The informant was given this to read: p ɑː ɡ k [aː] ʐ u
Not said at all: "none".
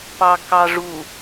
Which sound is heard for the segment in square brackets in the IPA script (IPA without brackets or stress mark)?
ɑː